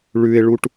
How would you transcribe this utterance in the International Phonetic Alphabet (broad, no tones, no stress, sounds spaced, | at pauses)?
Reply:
ɭ ʉ ɪ̯ ɭ u ʈ